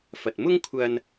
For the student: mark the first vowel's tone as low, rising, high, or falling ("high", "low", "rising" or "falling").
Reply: low